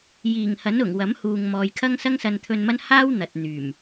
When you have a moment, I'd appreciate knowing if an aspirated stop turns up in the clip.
yes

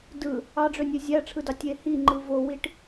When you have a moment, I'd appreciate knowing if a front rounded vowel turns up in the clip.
yes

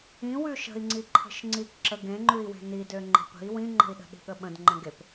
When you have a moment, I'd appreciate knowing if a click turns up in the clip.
yes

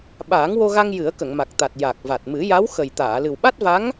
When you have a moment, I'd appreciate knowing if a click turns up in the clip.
no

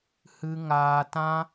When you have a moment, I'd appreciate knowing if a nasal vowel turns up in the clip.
yes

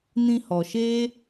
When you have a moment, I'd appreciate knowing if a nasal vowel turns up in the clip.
yes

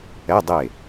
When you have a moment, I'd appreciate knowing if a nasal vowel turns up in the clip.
no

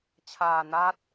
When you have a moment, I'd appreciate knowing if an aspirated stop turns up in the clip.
yes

